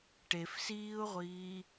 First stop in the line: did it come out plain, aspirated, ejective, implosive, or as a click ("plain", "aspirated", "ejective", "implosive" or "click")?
plain